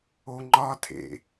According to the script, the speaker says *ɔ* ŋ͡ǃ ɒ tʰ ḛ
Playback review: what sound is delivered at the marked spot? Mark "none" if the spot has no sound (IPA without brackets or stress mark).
o